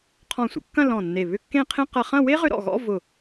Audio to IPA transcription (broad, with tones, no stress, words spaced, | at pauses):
qʰɔ̃˧˩sʷə̰˩˧kːɐ̃˥˧ lɔ̃˧˩nːe˧˩ βʏ˥˧kːẽ˥˧qʰẽ˥ qɐ˧χɐ̃˥˧ we˥ʁʏ˧ɾɔ̰˧˩ɣɔ̰˥˧ vʊ˧˩